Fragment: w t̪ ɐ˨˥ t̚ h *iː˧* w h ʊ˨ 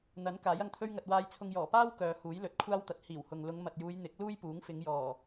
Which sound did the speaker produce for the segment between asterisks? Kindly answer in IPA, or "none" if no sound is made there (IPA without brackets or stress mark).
iː˨˩